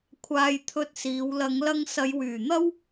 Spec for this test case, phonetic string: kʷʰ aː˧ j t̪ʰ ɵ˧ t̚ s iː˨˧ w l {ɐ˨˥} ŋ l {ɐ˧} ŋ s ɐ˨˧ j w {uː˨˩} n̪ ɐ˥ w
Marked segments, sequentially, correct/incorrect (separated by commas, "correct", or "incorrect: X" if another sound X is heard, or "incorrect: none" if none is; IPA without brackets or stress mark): incorrect: ɐ˨˧, correct, incorrect: yː˨˩